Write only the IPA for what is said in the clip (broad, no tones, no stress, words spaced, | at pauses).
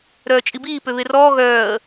ɾœːt͡ʃʼibiː pøβerɔː ɣœːə̯